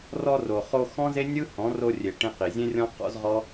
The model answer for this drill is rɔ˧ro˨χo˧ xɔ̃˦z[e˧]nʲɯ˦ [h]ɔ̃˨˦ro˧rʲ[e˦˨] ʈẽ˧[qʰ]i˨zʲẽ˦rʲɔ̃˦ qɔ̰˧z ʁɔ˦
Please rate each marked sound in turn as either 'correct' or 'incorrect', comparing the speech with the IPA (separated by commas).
incorrect, correct, incorrect, incorrect